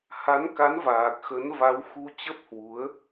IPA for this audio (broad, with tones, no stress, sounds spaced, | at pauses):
h a˨˦ n k a˨˦ n v aː˨˩ k̚ x ə˨˦ n v a˨˦ w x u˧ t͡ɕ ə˦˥ p̚ h w u˨˦ ə̯